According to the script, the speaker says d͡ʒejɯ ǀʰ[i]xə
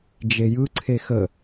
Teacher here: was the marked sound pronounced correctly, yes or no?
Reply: no